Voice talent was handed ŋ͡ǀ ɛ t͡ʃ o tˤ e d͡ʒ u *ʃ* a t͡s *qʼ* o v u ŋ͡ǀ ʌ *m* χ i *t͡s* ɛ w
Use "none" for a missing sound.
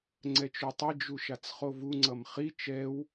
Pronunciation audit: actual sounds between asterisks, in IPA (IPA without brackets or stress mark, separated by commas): ʃ, χ, m, t͡ʃ